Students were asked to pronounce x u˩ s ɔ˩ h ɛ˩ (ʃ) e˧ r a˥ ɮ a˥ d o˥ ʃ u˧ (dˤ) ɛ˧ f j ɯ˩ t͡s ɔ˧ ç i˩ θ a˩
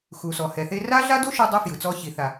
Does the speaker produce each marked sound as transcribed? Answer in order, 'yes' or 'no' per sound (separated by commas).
no, yes